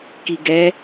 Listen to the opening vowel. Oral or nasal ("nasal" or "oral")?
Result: oral